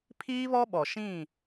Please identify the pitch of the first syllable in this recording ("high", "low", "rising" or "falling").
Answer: high